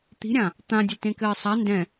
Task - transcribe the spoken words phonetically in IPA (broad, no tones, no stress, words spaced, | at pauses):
t̪i̤ɾʲã | t̪ãdʲəltẽkɘː sˤa ndɛ̃